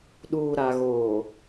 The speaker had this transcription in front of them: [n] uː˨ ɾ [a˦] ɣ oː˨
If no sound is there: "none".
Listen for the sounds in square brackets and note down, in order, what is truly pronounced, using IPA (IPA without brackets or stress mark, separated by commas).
ɗ, a˨